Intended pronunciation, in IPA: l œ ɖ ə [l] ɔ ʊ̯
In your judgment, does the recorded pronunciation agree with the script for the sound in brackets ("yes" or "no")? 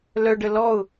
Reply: yes